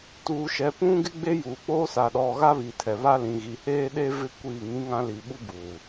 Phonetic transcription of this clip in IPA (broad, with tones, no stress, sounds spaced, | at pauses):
t uː˨ ʃ ɛ˨ p ũ˦ ɡ ɪ˦ ɡ͡b e˦ j uː˨ k͡p oː˦ s a˨ ɗ ɔ˨ ɣ a˦ β i˨ tʰ ɛ˨ β a˦ l ĩ˨ ɣ i˨ h eː˦ ɗ e˦ v ɪ˦ kʷ iː˦˨ ŋ ĩ˦ ŋ ã˦ l i˨ ɓ u˦ b u˨